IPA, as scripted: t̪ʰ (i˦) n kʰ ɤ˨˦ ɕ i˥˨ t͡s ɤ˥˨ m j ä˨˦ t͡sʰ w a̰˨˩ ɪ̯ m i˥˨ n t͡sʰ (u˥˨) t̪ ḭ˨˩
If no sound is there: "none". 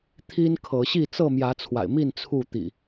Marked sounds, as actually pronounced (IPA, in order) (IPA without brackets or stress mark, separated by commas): i˦, u˥˨